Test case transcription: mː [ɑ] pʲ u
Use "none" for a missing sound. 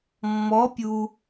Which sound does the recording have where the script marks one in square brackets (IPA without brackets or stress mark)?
ɔ